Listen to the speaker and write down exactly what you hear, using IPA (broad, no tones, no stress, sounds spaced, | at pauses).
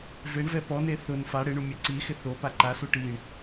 v e ɳ v ɛ p ɔ n e θ ʊ n f a ɽ ɪ ɳ u mʲ ɛ ǀ i x ɪ θ o p a ǃ a s u ʈ i ɳ